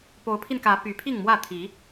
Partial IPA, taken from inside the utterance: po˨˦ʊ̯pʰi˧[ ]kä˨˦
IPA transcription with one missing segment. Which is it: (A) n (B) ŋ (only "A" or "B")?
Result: A